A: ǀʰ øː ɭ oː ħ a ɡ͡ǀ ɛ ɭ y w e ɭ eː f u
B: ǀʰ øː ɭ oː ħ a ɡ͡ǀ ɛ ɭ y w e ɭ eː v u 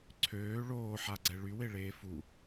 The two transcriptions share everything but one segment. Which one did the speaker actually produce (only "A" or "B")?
A